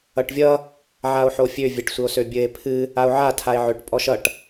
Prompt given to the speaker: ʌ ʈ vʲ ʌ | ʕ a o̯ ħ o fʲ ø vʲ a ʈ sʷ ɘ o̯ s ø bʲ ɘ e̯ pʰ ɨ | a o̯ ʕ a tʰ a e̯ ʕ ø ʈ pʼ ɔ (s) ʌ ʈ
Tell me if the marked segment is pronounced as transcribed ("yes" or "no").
no